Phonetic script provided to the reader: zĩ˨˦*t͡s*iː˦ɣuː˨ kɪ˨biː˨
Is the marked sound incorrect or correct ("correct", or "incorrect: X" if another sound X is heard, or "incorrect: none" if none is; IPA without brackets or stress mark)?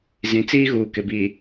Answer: correct